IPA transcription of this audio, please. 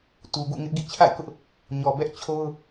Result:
t u˨ ɡ ṵ˦˨ ŋ ɪ˦ ʔ ɡ ḭ˦˨ t͡ɕʰ a̰˦˨ ɪ̯ k ʊ˦ ʔ | ɲ ɔ˨ b ɛ˦ ʔ t͡ɕʰ o˦ ʊ̯

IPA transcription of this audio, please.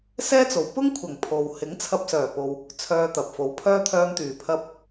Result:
s ɛː˥ t͡s o˨˩ w p ʊ˥ ŋ kʷʰ ɐ˨˩ ŋ pʰ o˨ w h ɪ˨˥ ŋ t͡sʰ ɐ˧ p̚ s œː˨˩ p o˨ w | t͡sʰ œː˧ t̪ ɐ˨ p̚ f o˨˥ w pʰ œː˥ t̪ʰ œː˧ m t̪ yː˨˩ pʰ ɐ˧ p̚

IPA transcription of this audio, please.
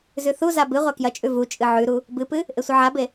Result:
z ʉ θ u z a b ɨ ʁʷ a k j ɐ t͡ʃʼ ʉ v u t͡ʃʼ ɨ ʕ ʉ ɾ u | b ɨ p ɨ | ʔ e sʷ ɨ ʕ a b e

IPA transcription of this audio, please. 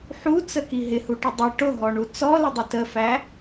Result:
ħ u t͡s ə k i ɦ ɪ h u ʈ ə dˤ ʌ ʈ ʊ ɦ ɔ ɳ u t͡s ɔ l ɪ dˤ ə t ə f æ

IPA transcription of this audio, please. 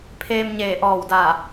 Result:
pʰ eː˧ m ɲ eː˧˩ ʔ ɔː˧˩ w d aː˧˩

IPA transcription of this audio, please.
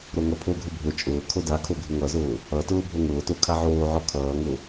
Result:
ɾ o ŋ ʌ pʰ o ɡʱ ʊ bʱ ʊ t͡ʃʼ ʊː kʰ o d a kʰ o ɡʱ ʊ ŋ ʌ z ʊː | ʌ t ʊː bʱ o ŋ ʊː t o kʰ a ʕ oː ʕ ɔ kʰ ʌː ŋ ʊ

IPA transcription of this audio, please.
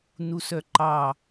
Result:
n u s œ ǃ ɑ

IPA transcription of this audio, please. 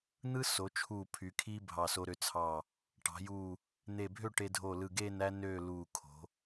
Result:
n̪ ɯ˥ s o˩˧ t͡ʃʰ uː˧˩ pʰ y˩˧ kʰ iː˥ bʱ ɑ˧˩ s o˧ ɾ ø˧ t͡sʰ ɑ˧˩ | ʈ ɑ̤˩˧ j uː˧˩ | n̪ e˧˩ bʱ ø˥˧ ʈ e˧ dʱ o˧˩ l ɯ˧˩ ɡ eː˥˧ n æ˥ n øː˥˧ l uː˧˩ kʰ o̤˩˧

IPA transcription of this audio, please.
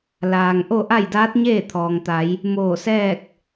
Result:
l aː˩ ŋ ʔ o˥˨ ʔ a˥˨ j d aː˧˥ t̚ ɲ eː˥˨ t̪ʰ ɔː˩ ŋ t̪ a˩˧ j | m oː˧˩ s ɛː˥˨ k̚

